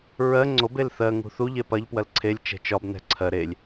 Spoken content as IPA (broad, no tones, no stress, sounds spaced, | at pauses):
ɹ ɜ ŋ͡ǀ o b e l θ ɜ ŋ ṳ θ u ʎ e p ɐ ʎ p w ɐ l ǀʰ e lʲ t͡ʃ ɛ̤ t͡ʃ ɒ b n ɛ̤ ǀʰ ɜ ɾ e lʲ